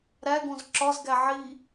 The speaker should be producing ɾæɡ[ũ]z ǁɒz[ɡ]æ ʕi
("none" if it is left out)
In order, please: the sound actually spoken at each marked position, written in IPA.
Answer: õ, ɡ

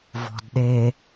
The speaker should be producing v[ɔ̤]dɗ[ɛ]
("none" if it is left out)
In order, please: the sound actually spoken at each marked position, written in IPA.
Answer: ɔ̤, e

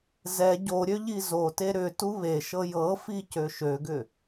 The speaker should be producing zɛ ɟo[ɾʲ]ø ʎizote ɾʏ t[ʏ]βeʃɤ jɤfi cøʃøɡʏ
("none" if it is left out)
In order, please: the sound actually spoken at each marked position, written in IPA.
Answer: ɾʲ, u

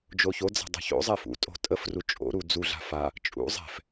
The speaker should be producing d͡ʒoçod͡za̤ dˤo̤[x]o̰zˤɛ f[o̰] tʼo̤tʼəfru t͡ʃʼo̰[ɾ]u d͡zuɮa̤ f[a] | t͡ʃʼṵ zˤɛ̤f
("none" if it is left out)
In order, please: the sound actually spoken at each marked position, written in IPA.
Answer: ç, ṵ, ɾ, a

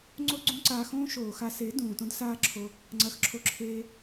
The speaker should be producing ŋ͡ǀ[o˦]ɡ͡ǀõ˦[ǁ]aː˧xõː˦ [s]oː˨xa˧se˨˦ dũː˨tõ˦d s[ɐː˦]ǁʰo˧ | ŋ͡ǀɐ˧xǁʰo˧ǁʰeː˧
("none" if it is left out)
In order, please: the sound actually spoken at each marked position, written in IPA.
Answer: o˦, ǀ, ʃ, aː˦

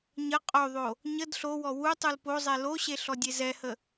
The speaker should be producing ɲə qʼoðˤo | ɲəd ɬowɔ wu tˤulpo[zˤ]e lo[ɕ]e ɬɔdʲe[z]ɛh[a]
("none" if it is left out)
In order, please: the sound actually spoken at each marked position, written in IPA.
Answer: zˤ, ɕ, z, ə

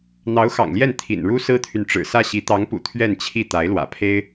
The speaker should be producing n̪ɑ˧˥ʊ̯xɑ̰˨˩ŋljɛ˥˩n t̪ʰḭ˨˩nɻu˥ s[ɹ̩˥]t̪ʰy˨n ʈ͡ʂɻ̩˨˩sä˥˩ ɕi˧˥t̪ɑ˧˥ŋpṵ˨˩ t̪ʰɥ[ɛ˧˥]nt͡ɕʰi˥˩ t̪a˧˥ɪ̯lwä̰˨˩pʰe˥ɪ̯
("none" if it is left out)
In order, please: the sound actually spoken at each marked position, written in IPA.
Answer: ɹ̩˥, ɛ˥˧

